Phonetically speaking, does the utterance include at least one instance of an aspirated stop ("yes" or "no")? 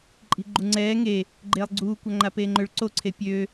yes